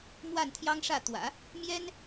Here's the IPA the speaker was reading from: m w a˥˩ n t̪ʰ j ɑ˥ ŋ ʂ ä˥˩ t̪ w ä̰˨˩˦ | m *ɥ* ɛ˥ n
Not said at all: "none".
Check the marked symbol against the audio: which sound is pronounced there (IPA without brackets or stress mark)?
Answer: j